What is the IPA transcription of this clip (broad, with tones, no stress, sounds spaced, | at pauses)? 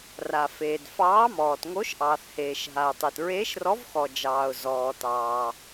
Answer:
r a˩ f eː˩ d f ɑː˨˥ m ɔː˩ t ŋ o˨˥ ʃ ʔ ɑː˩ θ h eː˩ ʃ ɦ a˩ ʊ̯ tˤ e˩ t ɹ eː˨˥ ʃ r ɔ˨˥ v x ɔ˩ d͡ʒ ɑː˩ ʊ̯ z ɔː˩ t ɑː˩